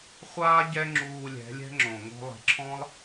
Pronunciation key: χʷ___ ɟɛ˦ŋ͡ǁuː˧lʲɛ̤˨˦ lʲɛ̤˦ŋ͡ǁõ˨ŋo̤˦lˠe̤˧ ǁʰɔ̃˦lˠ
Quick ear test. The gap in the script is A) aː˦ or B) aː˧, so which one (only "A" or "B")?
A